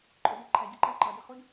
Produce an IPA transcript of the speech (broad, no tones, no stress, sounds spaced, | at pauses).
ǃʼ ʊ d æ ǃʰ æ ɟ i ǃ æ ǃ ʌ d ɪ χ u d